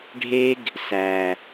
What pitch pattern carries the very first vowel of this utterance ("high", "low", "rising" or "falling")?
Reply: high